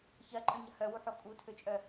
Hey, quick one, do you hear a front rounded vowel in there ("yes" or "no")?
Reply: yes